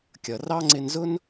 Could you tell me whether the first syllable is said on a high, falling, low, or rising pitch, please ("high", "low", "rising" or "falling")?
low